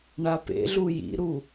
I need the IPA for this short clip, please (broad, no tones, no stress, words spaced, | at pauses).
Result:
ɳapḛɮu jḭɾu